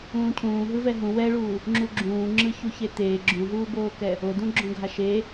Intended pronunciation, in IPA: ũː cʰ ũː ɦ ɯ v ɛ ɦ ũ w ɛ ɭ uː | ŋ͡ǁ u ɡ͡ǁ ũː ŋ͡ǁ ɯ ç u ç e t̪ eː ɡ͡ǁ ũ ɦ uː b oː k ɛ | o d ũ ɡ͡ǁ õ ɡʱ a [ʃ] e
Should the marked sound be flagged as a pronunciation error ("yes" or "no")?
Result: no